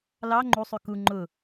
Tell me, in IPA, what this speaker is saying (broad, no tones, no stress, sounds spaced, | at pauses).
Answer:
l ɑ ŋ͡ǃ u sˤ ʉ k u ŋ͡ǃ ʊ